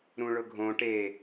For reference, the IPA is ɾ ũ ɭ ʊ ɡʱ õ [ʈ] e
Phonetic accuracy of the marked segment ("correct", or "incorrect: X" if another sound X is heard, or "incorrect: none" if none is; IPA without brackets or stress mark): correct